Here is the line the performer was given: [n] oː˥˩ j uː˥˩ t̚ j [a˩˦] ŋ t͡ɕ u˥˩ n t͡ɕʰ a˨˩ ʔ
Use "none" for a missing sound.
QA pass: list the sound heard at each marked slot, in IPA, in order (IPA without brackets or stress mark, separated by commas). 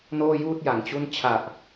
n, a˩˦